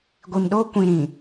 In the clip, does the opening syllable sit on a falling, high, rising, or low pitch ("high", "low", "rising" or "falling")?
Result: low